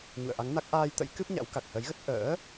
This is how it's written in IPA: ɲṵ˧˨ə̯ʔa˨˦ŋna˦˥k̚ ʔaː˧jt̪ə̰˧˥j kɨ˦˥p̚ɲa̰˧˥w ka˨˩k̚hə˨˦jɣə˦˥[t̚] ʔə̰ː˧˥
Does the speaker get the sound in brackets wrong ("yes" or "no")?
no